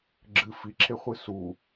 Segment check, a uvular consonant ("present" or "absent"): present